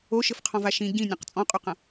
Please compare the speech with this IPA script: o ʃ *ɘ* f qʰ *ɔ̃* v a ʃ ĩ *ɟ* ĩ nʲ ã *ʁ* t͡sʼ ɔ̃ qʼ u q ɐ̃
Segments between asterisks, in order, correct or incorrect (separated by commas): correct, correct, correct, incorrect